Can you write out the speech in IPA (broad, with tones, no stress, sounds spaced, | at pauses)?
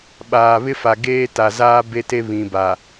ɓ aː˨ β ɪ˦ f a˨ ɡ eː˦ t a˨ z aː˦ b e˦ t e˦ β ĩ˨ b a˨